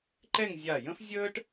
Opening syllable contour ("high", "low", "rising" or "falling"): falling